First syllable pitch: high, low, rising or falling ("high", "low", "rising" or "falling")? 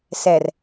low